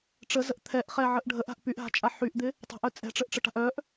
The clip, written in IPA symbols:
ʈ͡ʂəzəʔ t̪ʰɛʔχɛʕəʔ ɖʱəʔa̤ʔ pyʔɦa̤t͡ʃʼa ħyʔd̪ɪ | tˤa̤ʔœ t͡sʼɛ̤ʈ͡ʂəʔʈ͡ʂəʈa̤ʔ œʔ

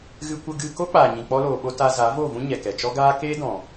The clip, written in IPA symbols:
ɣɨ˧ kʷə˧ ɡɨ˧ko˦k͡paː˨ ɲĩ˨k͡pɔ˧loː˨ɓo˧ ta˧za˨˦vo˦˨vũ˦ ɲɛ˨kɛ˨t͡ʃɔ˦ ɡaː˦ keː˦dɔ̃˨

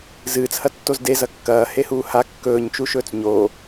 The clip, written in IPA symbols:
zɨːt͡shɐtːoz dezɐ kːɐːhehuː ha kːɵːɲt͡ʃuʃɵːt͡s ɲo

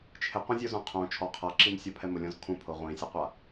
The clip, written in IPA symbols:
t͡ʃʰɪqʷɛ̃zʲozõ qʰõ t͡ʃʰɔ qʰaǁimsʲɔ pʰɛmʊlʲɔ̃z kʰũpʰo ʁʷĩsʲeqʷa

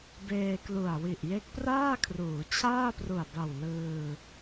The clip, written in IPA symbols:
beː˧klu˨˩a̯ wi˨˩ʔ je˦˥k̚praː˥˩kʰruː˩˦ t͡ɕʰaː˥˩pru˨˩a̯ba˨˩w lɯː˧

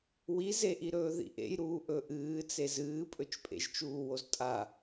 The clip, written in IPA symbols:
wizeʔiɾɵː ðḭʔḛjɾuː ʔɵʔɨːt͡se zɨːpʼɵt͡ʃpʼḛʒ t͡ʃuːwoztʼa

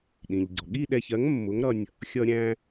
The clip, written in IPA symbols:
ɗĩ˩ʎɟɔ̤˩ ɠi˥˧ɗɛ˧çɜ˨˥ŋ mːʊ˨˥ŋɾʌ˧nʲ | xʲʌ˧ɾʲæ̃˧

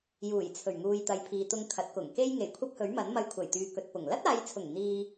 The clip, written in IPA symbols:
juː˨˩jt͡sʰɵ˨˩ɥŋuː˨j t̪ɐ˨jpʰiː˨t̪ʊ˧ŋ kʰɐ˨˥t̚kʊ˨˩ŋ ke˥j ŋe˨˩jkʷʰɐ˥p̚hɵ˨˥ɥmɐ˨˥n mɐ˧jkʷʰɐ˨˩j t̪yː˨kɵ˨t̚ pʊ˨˩ŋ lɐ˥t̚aː˨˧jt͡sʰʊ˨˩ŋ n̪iː˧

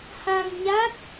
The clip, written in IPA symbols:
ha˧ŋɲa˦˥k̚

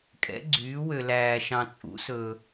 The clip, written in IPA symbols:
kʼɛ̰˨˥ɡ͡ǀyː˨˥wø˧ læː˧ʃɑ̃˧t͡sʼṵ˨˥sɵː˧

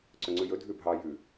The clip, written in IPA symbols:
ǀɵŋ͡ǀʉjɵ dʱʉbʱɑ jʉ

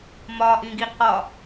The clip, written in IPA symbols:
mɒʔĩ ɡiqɒ

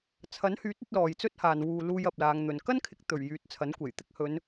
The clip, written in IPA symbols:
t͡sʰɐ˨˥nhyː˨˥t̚ɵ˧t̚ lɔː˨jt͡sɵ˥t̚haː˨n wuː˨ luː˧jɐ˨p̚laː˨˧ŋn̪ɵ˨n kɐ˥nkʰɪ˨˥k̚t̪ɵ˨˩ɥ jyː˨˥t̚t͡sʰɐ˨˥nkʷe˨˩j t̪ɪ˧k̚hɵ˨˧n

